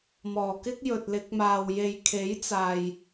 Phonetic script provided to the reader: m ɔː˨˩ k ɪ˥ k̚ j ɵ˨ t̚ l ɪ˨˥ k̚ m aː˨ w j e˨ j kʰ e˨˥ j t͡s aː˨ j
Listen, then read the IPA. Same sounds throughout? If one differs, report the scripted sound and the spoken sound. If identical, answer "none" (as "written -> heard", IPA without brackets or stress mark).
none